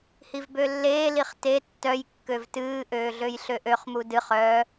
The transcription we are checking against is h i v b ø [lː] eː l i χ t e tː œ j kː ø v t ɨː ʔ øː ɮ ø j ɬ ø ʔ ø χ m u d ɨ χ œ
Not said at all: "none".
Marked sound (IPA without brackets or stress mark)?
lː